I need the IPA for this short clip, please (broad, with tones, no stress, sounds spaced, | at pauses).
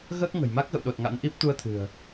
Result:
ɣ əː˦˥ k̚ ŋ ə̤˨˩ j m a˦˥ k̚ ɣ ə̰˧˨ w ɗ o˨˩ t̚ ŋ a̰˧˥ n ʔ i˦˥ p̚ t̪ u˧ ə̯ t̪ʰ ɨ̤˨˩ ə̯